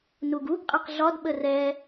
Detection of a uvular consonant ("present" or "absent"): present